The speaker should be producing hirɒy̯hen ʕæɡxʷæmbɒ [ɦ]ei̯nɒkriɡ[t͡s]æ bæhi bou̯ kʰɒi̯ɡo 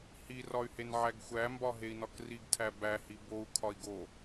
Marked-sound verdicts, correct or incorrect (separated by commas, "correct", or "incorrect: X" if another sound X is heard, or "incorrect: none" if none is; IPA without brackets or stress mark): correct, incorrect: tʰ